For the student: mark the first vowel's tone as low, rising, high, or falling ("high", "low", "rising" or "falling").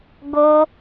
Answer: high